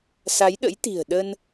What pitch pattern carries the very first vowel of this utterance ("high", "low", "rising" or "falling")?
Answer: rising